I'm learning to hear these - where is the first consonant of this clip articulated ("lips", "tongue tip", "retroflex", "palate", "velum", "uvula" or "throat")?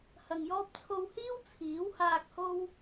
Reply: throat